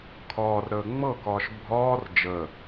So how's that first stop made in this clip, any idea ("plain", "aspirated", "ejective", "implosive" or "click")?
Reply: aspirated